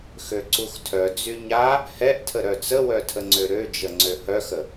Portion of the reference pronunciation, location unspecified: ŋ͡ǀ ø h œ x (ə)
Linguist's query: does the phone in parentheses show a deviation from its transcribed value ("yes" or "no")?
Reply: no